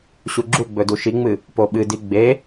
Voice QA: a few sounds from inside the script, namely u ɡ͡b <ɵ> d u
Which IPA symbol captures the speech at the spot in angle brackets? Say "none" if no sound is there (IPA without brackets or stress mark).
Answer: ɵ